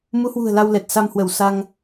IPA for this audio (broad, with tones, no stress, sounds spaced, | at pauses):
m u˨˦ h w ṳ˨˩ ə̯ l a˧ w l ɛ˨˩ t̚ s a˧ m h w ə˧˩ w s a˧ ŋ